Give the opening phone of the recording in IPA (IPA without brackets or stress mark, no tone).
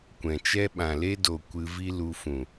kʷ